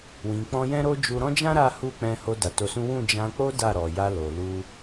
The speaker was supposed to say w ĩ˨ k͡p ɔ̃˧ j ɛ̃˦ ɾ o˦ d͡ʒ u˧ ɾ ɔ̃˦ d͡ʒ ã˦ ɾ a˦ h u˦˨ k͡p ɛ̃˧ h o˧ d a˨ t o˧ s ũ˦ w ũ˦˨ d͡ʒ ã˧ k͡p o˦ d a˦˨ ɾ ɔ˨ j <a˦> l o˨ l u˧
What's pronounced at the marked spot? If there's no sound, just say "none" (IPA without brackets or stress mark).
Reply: a˧